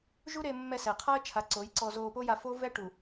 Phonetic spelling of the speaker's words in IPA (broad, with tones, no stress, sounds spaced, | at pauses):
ʒ u˦ ɾ e˧ mː ɛ˧ s ɛ˨ qʰ a˦ ə̯ t͡ʃʰ a˨˦ ǀ o˨˦ j ǀ ɔ˧ z oː˧ p o˦ j a˧ f o˦ v ɛ˦ ʈ u˨